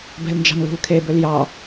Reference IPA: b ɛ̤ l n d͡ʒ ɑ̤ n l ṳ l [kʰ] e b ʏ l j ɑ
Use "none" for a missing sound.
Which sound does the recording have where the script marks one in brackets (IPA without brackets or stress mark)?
kʰ